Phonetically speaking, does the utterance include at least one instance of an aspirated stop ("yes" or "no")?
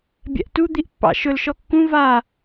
no